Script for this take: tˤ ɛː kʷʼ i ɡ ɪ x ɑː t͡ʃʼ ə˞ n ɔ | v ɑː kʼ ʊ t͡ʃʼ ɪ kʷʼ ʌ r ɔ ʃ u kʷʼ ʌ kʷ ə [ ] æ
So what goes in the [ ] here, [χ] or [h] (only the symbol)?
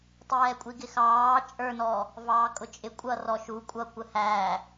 h